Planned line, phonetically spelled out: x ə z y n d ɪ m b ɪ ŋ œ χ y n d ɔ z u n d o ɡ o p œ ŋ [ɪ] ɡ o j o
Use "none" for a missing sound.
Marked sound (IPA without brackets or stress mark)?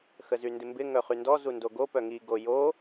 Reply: i